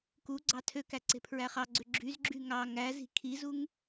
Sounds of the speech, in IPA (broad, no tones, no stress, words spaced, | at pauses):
ku ɡ͡ǀɑtʰøkæ ǀe̤pʰɹæχɑɡ͡ǀø ɡ͡ǁyzɡ͡ǁy ŋɑ ŋæzi̤ kʰizuŋ